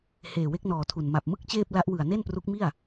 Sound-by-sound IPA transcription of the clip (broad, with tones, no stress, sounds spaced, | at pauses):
h eː˨˩ w e˦˥ k̚ n ɔː˨˩ tʰ u˨˩ n m a˨˩ p̚ m ɯ˥˩ k̚ t͡ɕ eː˥˩ p̚ l a˦˥ ʔ w ɯ˨˩ a̯ n e˥˩ n p r u˦˥ k̚ m i˥˩ a̯